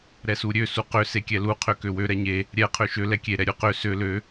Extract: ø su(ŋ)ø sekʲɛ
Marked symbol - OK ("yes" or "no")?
no